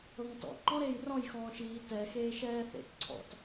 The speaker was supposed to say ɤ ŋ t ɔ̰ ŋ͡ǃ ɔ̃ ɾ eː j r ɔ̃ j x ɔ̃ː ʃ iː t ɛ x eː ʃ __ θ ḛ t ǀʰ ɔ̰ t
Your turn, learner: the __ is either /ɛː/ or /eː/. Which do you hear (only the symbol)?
ɛː